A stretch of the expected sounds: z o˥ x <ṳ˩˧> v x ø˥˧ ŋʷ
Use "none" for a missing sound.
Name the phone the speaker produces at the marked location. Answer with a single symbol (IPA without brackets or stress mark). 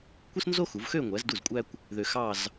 u˩˧